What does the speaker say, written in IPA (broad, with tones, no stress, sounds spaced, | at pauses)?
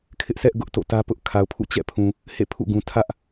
kʰ ɪ˦ ʔ s ɛ˦ ʔ ɡ ʊ˦ ʔ t o̰˦˨ t ä˦ p ʊ˦ ʔ kʰ a˨ ʊ̯ pʰ ṵ˦˨ t͡ɕ ɛ̰˦˨ pʰ ũ˨ | h ḛ˦˨ pʰ ṵ˦˨ ɡ ũ˨ tʰ ä˦ ʔ